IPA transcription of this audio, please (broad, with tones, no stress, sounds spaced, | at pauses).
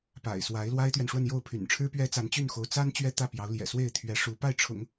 p a̰˨˩ ɪ̯ s w a˧˥ ɪ̯ l w a˥ ɪ̯ t̪ ɥ ɛ˨ n ʂ w ə˥˧ n j o˥˩ ʊ̯ pʰ y̰˨˩ n ʈ͡ʂʰ ɻ̩˥ p ɥ ɛ˥ t͡s a˧˥ n t͡ɕ y˥˩ n x o˧˥ ʊ̯ t͡s a˥ n t͡ɕ ɥ ɛ˥ t̪ ä˥˩ p j ɑ˧˥ ʊ̯ l j ɛ̰˨˩ s w e˥˩ ɪ̯ t̪ʰ ɥ ɛ˧˥ ʂ u˧˥ p a˥˩ ɪ̯ ʈ͡ʂʰ ʊ̰˨˩˦ ŋ